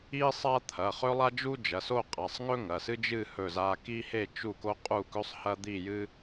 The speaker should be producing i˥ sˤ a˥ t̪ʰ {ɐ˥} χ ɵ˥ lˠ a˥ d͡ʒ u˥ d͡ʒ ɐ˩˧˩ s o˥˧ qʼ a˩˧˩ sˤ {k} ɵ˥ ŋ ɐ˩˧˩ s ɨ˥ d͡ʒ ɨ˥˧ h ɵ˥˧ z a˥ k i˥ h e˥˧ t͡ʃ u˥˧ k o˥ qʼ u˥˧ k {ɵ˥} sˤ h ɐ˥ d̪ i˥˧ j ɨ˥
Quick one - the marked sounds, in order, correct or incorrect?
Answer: incorrect, incorrect, correct

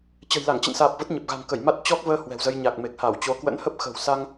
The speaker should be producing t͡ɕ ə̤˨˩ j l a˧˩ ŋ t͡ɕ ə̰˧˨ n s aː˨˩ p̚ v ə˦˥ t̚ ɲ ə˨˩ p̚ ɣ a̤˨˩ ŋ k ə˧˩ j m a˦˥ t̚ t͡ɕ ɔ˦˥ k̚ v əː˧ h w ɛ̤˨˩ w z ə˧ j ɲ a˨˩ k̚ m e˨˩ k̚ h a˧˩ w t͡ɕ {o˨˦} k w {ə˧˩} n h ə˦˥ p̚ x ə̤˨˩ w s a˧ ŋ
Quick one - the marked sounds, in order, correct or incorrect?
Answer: correct, incorrect

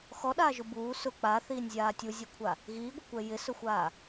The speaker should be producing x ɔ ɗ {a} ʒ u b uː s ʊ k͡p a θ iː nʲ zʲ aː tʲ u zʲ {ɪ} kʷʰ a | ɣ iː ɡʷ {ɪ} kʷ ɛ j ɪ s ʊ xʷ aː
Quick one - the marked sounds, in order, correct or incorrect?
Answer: incorrect, incorrect, incorrect

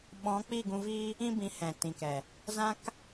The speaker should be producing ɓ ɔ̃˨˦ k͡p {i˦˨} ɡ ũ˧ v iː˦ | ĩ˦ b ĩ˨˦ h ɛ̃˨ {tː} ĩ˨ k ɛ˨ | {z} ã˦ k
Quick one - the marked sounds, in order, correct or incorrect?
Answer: correct, incorrect, correct

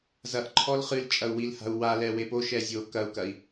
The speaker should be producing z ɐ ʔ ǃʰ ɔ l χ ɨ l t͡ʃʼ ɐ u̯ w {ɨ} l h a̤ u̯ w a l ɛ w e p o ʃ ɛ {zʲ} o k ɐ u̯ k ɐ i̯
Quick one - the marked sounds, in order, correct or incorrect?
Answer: incorrect, correct

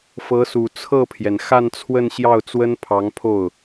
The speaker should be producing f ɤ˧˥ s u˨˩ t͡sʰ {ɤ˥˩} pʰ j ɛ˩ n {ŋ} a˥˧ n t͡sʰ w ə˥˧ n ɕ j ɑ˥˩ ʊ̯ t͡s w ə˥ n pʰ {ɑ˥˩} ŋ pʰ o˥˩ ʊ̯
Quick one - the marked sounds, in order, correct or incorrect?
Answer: correct, incorrect, incorrect

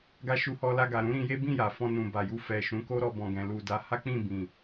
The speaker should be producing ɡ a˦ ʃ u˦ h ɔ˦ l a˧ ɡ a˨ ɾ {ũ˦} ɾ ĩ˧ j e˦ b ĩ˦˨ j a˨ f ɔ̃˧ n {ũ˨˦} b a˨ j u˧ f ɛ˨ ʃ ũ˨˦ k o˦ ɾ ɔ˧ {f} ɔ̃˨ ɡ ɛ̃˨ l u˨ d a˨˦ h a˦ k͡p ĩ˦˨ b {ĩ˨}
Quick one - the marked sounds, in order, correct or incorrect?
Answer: incorrect, incorrect, incorrect, correct

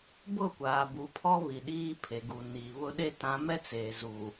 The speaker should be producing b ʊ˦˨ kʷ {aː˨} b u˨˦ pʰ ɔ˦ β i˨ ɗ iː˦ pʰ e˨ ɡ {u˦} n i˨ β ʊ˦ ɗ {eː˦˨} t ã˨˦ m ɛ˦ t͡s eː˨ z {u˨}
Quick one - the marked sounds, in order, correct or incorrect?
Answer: correct, incorrect, incorrect, correct

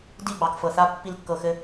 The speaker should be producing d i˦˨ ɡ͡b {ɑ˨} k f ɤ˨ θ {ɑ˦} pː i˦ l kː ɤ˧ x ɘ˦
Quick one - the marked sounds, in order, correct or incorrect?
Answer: correct, incorrect

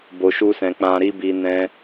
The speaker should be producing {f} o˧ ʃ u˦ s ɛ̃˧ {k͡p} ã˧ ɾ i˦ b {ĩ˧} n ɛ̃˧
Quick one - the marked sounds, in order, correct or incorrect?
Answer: incorrect, correct, incorrect

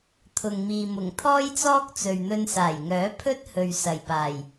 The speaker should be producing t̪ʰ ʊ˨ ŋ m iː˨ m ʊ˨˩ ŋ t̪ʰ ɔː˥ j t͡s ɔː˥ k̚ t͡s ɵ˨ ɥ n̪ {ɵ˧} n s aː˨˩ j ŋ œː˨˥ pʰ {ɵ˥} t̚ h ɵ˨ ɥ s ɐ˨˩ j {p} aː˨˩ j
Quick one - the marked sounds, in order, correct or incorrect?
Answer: correct, correct, correct

